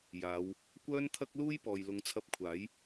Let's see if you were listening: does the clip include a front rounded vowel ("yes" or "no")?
yes